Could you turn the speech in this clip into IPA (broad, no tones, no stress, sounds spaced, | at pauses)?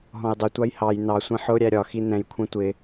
ɦ ɔ̃ j dˤ ɪ tʷ ɑ j h ɑ j n ɑ sʷ ĩ ħ ʊ ɾʲ æ ɾʲ ɒ x i n ɛ̃ j kʷʰ ɛ̃ tʷ ɪ